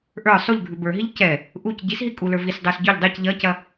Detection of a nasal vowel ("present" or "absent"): absent